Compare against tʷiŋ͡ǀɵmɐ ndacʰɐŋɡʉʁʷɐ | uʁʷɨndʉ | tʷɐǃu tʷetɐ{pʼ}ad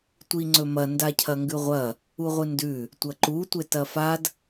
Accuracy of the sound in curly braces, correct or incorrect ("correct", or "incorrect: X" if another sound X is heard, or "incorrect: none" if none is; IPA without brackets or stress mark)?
incorrect: f